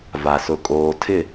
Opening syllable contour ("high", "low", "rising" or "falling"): low